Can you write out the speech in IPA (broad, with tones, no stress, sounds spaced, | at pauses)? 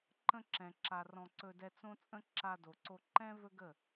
ǃ ə̃˧ ǁ ɛ̃˨ ǁ a˨ r ɔ̃˧ ǀ ɵ˧ d ɛ˧ t͡s õ˦ t͡sʼ ə̃˦ ǁ a˧ d o˨ ǀ o˧ ǃ ɛ̃˦ v ɵ˦ ɡ ə˦˨